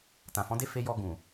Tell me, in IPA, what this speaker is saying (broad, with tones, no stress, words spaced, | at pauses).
tã˨fɔ̃˨˦de˦ fe˧jɔ˧ ɡũ˨